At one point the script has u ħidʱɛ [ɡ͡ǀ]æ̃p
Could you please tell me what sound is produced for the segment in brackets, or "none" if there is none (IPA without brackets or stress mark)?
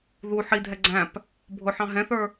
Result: ɡ͡ǀ